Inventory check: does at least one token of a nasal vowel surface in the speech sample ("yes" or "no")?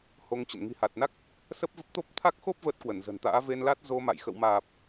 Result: no